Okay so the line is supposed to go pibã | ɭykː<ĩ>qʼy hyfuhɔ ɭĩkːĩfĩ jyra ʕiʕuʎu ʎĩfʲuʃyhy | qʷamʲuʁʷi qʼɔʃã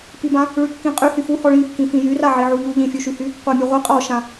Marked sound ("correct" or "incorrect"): correct